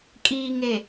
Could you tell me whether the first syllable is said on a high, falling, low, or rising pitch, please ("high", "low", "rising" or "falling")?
low